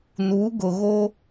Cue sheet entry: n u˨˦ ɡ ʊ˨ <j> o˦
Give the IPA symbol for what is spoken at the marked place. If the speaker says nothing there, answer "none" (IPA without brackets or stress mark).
ɣ